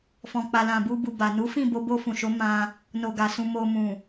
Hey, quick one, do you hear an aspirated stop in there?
no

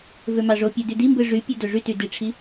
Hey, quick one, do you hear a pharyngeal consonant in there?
no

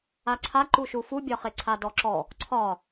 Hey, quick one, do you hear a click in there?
yes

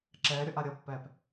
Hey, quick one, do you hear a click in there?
yes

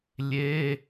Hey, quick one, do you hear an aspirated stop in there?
no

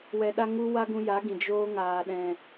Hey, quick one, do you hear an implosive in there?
yes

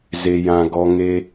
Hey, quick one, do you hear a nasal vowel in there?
yes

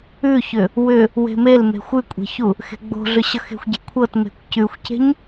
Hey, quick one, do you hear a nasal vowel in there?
no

